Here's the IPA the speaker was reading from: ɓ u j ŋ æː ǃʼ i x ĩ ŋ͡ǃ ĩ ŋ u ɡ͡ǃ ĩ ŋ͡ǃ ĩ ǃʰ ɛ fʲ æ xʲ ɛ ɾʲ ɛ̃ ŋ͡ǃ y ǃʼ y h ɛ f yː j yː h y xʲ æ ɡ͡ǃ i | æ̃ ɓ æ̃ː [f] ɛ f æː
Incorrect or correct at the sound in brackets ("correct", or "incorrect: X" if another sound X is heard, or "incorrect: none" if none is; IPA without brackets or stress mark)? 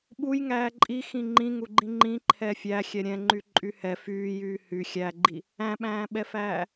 incorrect: ɓ